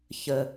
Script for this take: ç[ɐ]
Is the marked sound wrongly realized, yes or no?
yes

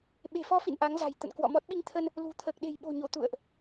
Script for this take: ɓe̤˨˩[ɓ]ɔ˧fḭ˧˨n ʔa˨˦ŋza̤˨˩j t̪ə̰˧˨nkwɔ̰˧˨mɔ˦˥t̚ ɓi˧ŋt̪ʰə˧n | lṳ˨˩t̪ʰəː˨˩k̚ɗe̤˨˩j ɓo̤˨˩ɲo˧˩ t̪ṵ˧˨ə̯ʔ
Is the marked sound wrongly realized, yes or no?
yes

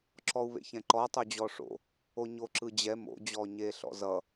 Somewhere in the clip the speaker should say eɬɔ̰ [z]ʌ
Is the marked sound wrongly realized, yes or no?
no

